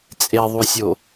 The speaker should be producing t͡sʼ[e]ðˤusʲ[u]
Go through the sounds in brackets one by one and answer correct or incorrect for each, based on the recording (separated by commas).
correct, incorrect